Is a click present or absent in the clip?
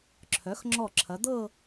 present